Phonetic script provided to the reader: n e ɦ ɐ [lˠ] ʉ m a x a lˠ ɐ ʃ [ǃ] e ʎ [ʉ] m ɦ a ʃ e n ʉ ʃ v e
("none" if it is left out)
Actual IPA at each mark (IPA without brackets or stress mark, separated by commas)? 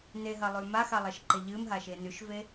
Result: lˠ, ǃ, ɨ